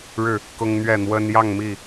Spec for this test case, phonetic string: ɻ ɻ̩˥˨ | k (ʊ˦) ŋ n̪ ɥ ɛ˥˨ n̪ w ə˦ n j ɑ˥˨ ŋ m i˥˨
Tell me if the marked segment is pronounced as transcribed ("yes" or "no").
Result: yes